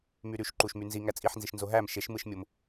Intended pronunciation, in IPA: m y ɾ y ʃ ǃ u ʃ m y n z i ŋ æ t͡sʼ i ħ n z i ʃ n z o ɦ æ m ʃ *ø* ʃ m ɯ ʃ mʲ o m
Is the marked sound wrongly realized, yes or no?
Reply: yes